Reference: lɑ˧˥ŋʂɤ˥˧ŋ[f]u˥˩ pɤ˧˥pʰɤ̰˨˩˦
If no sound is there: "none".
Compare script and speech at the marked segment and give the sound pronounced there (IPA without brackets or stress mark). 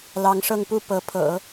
p